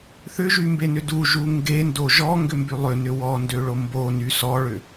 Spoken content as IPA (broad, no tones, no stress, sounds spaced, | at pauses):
θ ʏ ʒ y m b e n ʏ d u ʒ u ŋ ɡ e n d o ʒ ɔ ŋ ɡ ʏ m b y lˠ ʏ n ʏ w ɔ n d ø ɭ o m b o n y s ɔ ɭ ʏ